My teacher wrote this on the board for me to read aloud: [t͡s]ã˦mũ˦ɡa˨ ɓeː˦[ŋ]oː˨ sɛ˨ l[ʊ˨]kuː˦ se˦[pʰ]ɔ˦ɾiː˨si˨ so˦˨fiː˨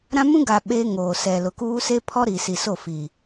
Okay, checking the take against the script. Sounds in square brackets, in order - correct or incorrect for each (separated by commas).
incorrect, correct, correct, correct